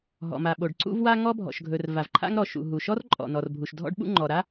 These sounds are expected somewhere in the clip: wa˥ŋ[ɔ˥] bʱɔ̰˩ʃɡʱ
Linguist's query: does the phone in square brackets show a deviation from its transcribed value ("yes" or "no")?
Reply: no